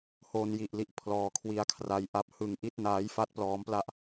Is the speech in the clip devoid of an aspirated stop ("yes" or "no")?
no